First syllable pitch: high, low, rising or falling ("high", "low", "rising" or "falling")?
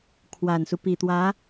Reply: low